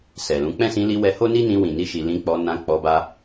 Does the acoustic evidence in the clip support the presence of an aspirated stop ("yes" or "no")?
no